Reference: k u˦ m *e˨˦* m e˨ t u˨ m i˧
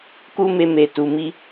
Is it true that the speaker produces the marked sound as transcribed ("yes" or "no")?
no